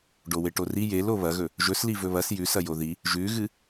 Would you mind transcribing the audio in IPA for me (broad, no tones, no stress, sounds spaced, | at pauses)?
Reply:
ɖ o w e ʈ o r i j e l o β ɐ ɣ ɵ | ʒ ɵ s l i v ɵ β ɐ s j ʉ s ɐ j o ð i | ʒ ʉ ɣ ɨ